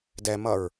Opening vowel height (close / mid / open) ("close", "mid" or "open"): mid